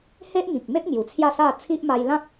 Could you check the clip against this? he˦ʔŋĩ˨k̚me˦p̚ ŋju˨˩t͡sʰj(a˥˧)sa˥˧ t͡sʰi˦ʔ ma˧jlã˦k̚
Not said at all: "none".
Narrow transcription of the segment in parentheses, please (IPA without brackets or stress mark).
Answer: a˥˧